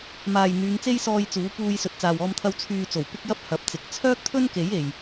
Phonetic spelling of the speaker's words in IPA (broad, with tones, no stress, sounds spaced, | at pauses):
m aː˨ j n̪ yː˨˧ ŋ t͡s e˥ j s ɔː˧ j t͡s uː˨˥ p uː˧ j s ɵ˨ t̚ t͡s aː˨ w ɔː˧ m t̪ʰ ɐ˧ w t͡sʰ yː˨ t͡s o˨˩ w p ɪ˥ k̚ j ɐ˥ p̚ h ɐ˨˥ p̚ t͡s ɪ˨˥ k̚ t͡sʰ œː˥ k̚ t̪ʰ ɵ˥ n k e˨˥ j e˨ j